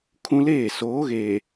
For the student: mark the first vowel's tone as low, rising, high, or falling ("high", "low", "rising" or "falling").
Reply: high